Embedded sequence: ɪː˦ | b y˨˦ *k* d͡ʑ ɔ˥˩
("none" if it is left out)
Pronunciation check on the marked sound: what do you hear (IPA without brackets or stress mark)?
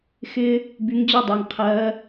ŋ